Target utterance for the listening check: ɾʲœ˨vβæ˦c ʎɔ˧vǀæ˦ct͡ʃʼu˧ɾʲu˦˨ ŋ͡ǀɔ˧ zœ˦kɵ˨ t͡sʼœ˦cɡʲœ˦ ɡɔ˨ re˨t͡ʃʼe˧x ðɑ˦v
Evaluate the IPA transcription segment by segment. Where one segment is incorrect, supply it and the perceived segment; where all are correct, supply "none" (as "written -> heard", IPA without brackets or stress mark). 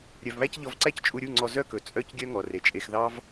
ɡ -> ŋ